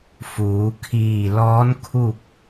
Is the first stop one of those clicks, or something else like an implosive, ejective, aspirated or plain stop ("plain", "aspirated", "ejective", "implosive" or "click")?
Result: aspirated